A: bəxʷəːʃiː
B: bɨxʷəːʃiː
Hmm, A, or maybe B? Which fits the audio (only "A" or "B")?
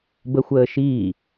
A